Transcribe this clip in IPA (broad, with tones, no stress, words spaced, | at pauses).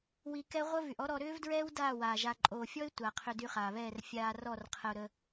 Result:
wi˧kɛ˦ ʁʷə˦vy˨ʔɔ˦ɾɔ˧ ɾʏː˦vdɹɛː˦w daː˦˨ waː˨ʒa˧ ǃʼoː˨fʲɔ˦ɪ̯ tʷa˨ qʰʏ˧dy˧χaː˨βɛː˦˨r fʲaː˧ rɔ˦˨rqʰə˧ʊ̯ɾə˧